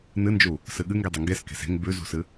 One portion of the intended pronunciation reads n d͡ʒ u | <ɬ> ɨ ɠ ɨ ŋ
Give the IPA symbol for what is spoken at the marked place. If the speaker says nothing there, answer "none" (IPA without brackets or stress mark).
s